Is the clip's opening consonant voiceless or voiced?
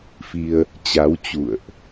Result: voiceless